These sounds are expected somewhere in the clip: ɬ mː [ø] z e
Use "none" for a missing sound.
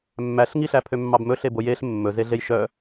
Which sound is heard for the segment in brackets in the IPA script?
ɵ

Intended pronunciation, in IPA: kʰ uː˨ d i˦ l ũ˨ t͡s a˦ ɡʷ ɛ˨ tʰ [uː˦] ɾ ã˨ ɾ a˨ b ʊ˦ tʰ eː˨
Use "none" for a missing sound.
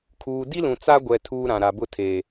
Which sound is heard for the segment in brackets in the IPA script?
uː˦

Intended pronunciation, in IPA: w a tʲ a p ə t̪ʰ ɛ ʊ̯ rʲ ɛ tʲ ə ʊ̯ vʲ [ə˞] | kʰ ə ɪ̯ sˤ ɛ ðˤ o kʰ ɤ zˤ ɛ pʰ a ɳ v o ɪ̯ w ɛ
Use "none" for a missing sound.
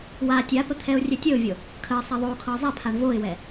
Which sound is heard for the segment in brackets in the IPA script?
ɤ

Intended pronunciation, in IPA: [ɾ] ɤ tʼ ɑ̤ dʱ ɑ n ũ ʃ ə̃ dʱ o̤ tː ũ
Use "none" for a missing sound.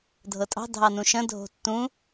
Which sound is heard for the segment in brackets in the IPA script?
dʱ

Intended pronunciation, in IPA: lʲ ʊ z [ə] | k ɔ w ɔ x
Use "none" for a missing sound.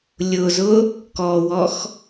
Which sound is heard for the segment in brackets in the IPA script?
ʊ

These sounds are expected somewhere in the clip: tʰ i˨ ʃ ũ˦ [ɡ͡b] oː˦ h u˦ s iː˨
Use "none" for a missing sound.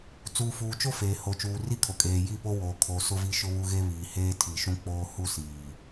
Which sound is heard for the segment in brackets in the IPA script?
k͡p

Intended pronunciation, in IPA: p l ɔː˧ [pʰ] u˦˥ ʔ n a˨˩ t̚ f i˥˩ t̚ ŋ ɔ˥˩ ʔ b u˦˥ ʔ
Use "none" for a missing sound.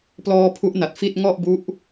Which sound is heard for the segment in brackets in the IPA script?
pʰ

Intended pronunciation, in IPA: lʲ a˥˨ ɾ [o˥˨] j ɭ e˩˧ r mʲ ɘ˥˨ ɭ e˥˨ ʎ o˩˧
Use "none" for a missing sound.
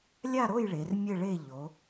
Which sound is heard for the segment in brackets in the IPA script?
o˥˨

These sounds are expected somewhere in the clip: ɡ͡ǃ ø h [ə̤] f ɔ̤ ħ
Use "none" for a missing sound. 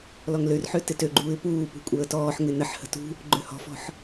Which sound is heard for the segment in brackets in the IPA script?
ɔ̤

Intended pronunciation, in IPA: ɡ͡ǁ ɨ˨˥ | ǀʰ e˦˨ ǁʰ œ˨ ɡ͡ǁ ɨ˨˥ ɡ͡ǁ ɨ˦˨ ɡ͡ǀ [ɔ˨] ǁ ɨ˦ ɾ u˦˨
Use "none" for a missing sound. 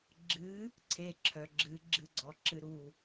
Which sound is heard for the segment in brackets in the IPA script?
ɔ˨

